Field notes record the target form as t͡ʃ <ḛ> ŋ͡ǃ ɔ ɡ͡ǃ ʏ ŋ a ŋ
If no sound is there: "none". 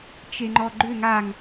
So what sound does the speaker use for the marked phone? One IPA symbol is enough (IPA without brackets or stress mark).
e